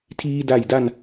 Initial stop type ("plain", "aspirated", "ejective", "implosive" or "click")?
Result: aspirated